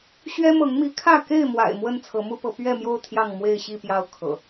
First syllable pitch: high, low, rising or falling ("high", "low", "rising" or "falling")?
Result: high